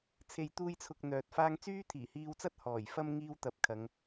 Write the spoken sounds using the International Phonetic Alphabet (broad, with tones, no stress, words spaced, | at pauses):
t͡sʰe˨jt̪uː˧jt͡sʰʊ˨k̚ n̪œː˨t̚faː˥ŋ t͡syː˥t̪ʰiː˨˩hiː˧wt͡sɐ˥t̚ hɔː˨˩jfɐ˥m ŋiː˥wt̪ɐ˨˥p̚kʰɐ˨˧ŋ